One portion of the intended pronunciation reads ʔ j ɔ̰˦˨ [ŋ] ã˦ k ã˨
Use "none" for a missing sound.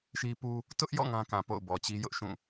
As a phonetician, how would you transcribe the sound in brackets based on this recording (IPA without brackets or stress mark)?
ŋ